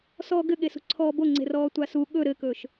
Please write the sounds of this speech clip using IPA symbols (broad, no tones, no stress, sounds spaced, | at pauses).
s ɔː ɡ ɘ ɠ e s ṳ ǀʰ ɔː b o ŋ͡ǀ e̤ r ɔː tʷ a s u ɠ ɵ ɾ ɘ k ɵ ʃ